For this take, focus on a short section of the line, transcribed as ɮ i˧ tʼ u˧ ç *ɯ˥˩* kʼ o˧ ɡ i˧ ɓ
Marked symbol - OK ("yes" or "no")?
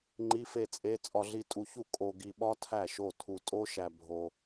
no